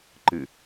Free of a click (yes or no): no